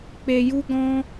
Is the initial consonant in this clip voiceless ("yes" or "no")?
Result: yes